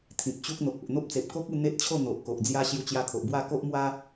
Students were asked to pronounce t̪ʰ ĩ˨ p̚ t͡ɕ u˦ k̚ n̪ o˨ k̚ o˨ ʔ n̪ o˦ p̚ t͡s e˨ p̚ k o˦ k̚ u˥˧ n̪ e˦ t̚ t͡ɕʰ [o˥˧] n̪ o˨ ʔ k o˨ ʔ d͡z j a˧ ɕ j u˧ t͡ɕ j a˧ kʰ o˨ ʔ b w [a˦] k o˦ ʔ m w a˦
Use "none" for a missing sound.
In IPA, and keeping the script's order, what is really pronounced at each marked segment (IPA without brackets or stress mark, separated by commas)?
o˥˧, a˥˧